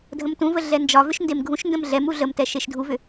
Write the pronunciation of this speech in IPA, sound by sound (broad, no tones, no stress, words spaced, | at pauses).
dʱə̃mtũvə ɮɛnd͡ʒɒvʏʃ ndemɡʱũʃndə̃m ɮɛmu ɮəmtɛ ʃeʃdʱuvʏ